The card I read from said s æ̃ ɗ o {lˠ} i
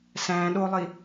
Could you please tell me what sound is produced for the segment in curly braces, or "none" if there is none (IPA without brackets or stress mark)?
lˠ